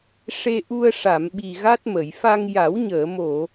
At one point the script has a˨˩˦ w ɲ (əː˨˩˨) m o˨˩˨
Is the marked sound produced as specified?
yes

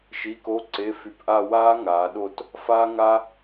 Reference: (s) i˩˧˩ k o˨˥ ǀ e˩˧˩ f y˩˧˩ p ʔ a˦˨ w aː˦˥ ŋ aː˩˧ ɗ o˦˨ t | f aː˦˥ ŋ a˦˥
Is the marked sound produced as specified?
no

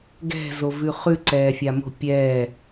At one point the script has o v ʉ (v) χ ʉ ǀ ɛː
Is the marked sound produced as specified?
no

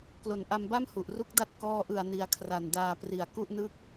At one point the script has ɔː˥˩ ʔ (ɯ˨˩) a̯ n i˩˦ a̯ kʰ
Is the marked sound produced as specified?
yes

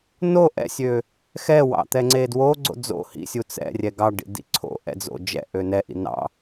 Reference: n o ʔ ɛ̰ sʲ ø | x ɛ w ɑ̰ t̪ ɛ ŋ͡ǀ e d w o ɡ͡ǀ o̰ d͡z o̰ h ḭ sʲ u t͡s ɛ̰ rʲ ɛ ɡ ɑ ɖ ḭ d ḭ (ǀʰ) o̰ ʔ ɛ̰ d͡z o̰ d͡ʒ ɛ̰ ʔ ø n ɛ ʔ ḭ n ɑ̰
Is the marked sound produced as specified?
yes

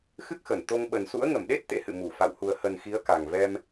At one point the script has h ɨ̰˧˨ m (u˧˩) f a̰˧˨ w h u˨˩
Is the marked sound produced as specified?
yes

